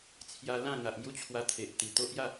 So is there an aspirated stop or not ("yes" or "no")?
yes